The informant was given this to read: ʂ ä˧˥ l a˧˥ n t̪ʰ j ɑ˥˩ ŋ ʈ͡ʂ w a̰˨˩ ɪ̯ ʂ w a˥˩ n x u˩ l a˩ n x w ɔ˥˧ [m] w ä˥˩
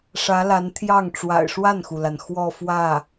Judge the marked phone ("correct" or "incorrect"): incorrect